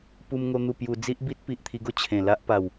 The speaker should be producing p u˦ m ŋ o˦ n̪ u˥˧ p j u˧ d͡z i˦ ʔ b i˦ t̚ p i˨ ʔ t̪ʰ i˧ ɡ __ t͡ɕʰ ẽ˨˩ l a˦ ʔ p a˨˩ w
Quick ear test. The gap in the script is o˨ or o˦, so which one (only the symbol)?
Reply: o˦